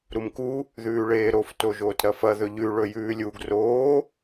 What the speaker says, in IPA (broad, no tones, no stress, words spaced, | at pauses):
ɾumku | ðʉːɭeːɾof toʒoːtɾɐfɐ ðɵʎʉ ɭɵjʉːlʲuɡ roː